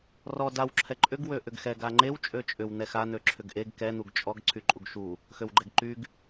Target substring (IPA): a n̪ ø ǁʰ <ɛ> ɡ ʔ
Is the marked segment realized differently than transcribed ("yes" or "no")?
yes